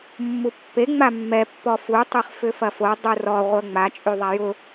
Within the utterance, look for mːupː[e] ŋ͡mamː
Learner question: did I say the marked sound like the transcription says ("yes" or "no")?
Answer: yes